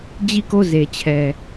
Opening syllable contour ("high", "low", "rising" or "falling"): falling